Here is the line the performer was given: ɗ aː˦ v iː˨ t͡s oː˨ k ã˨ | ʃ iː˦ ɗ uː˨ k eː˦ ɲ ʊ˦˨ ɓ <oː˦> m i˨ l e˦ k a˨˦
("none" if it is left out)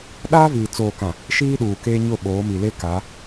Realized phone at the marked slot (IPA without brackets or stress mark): oː˨˦